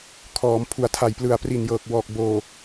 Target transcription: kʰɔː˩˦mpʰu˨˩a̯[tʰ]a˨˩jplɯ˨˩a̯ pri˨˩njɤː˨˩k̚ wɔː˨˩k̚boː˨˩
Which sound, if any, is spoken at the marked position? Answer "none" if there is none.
tʰ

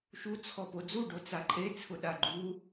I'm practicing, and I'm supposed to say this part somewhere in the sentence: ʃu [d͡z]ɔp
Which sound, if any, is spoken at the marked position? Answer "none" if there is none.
t͡sʰ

